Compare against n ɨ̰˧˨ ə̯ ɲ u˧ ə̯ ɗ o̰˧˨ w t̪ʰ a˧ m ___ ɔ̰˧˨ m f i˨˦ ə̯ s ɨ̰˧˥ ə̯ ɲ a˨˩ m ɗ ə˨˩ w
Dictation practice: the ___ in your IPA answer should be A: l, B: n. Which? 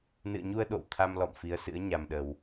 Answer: A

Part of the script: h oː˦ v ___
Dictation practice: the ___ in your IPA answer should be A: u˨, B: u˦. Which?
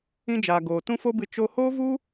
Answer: B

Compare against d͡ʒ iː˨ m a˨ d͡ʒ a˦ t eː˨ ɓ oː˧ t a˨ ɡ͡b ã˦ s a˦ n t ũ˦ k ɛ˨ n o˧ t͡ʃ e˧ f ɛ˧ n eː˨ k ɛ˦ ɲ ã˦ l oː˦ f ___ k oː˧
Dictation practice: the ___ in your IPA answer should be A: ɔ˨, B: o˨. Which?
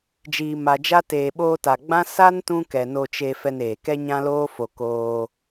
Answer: B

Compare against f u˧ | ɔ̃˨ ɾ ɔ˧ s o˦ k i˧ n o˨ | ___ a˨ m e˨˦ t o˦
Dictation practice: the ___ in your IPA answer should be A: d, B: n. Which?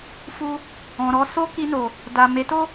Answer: A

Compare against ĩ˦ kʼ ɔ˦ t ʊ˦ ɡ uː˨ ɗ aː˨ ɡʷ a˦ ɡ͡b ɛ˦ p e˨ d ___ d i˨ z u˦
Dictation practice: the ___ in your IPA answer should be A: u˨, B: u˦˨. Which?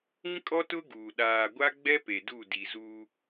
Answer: B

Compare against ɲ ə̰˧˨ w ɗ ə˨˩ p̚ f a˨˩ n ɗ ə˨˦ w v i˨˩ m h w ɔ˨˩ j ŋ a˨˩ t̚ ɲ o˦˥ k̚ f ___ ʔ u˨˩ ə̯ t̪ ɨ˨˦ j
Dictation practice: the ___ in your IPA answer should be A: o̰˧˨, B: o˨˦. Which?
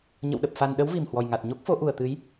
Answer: B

